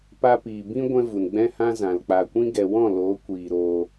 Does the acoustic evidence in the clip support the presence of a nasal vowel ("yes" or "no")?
yes